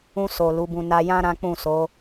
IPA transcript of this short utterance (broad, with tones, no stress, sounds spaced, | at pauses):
ũ˧ s o˨ l u˨˦ b ũ˧ n a˧ j ã˦ ɾ ã˦ k͡p ũ˦˨ s o˨˦